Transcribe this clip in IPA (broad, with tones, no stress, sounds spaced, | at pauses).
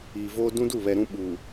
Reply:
iː˨ v oː˦ d ũ˦ d u˦˨ β ɛ˨ ɾ ũ˦ ɓ uː˨